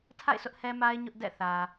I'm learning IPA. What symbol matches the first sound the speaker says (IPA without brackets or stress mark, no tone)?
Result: tʰ